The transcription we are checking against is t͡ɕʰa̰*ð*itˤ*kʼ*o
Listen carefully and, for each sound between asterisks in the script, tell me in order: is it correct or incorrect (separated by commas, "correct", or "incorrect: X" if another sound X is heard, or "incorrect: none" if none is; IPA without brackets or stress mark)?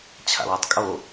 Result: incorrect: w, correct